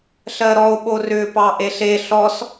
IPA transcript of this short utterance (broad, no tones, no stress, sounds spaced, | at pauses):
ɬ ɜ ɾ ɔ o̯ ɓ o r ʏ p ɑ ʔ e ɬ e ɬ ɔ s